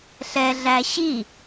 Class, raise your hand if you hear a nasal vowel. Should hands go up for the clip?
no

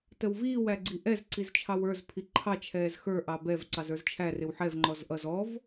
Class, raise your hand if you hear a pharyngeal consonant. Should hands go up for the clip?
yes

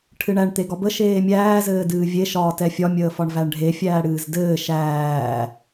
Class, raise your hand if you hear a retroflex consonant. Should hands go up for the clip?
yes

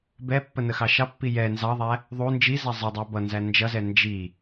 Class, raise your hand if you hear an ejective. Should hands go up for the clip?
no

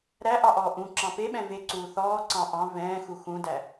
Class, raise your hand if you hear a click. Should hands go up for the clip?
yes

